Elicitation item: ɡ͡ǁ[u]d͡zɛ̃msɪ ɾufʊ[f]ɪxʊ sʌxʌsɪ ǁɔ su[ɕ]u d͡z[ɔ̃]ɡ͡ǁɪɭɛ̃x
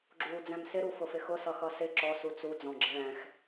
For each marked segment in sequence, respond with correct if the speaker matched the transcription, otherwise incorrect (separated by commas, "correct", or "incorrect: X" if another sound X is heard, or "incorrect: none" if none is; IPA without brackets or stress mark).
incorrect: uː, correct, incorrect: t͡s, correct